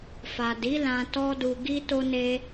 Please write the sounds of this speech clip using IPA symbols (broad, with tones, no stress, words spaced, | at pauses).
fa˨di˨˦ lã˧tɔ˦du˧ ɡi˦to˦ne˦